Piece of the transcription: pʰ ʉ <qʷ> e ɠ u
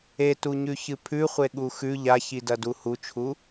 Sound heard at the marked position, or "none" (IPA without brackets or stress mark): χʷ